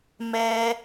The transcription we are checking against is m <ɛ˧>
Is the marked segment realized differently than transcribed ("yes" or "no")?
no